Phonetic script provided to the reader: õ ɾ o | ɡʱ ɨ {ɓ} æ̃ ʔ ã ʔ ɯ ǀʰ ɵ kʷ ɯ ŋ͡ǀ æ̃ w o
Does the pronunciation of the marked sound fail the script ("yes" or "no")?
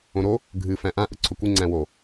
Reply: yes